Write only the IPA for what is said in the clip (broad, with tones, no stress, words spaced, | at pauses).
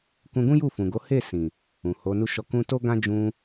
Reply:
kũ˧ɡũ˦ ju˦˨fũ˨ɡo˨˦ he˦˨ sĩ˨ | ũ˨ho˨˦nu˦ʃɔ˦˨ kũ˧to˦ɡã˦ d͡ʒũ˧